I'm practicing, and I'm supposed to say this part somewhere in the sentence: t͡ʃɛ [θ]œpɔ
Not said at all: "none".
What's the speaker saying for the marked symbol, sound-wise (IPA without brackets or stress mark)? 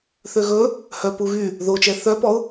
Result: θ